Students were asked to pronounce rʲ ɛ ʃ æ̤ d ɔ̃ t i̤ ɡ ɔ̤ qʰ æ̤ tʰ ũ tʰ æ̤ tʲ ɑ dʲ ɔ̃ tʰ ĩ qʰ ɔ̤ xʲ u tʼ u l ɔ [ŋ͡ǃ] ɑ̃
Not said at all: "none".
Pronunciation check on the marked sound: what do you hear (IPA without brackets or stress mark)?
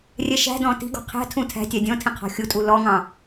ŋ